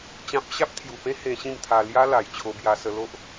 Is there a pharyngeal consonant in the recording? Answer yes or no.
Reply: no